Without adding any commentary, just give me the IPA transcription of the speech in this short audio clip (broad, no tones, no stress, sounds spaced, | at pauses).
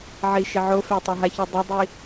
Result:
ʕ i ʃ ɪ ʕ o f ɛ tˤ a ɦ a ç o dˤ o dˤ i